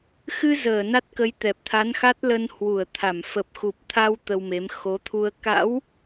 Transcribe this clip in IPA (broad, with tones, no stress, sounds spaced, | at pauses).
x ɨ˧ z əː˧˩ n a˦˥ t̚ k ə˨˦ j t̪ ɛ˨˩ p̚ t̪ʰ a˨˦ n x a˦˥ t̚ l ə˧ n h w u˧˩ ə̯ t̪ʰ a˧˩ m f ə˨˩ p̚ x u˨˩ p̚ t̪ʰ a˧ w t̪ ə˧ w m e˨˦ m x o˨˦ t̪ʰ u˧ ə̯ k a̰˧˥ w